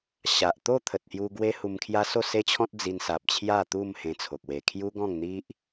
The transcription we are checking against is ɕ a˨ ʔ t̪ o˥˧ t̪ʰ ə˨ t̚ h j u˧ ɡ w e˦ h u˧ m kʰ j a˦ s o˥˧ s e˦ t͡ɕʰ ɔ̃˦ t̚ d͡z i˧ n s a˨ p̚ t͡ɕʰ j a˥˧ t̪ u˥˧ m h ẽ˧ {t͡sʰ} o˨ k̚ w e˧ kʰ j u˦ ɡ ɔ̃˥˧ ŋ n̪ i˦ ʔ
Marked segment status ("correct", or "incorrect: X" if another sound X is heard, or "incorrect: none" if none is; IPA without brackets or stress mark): correct